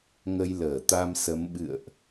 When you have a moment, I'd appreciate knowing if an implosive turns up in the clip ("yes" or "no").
yes